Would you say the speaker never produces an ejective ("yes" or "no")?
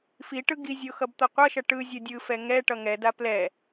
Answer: yes